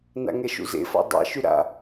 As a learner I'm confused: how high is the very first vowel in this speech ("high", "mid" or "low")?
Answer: low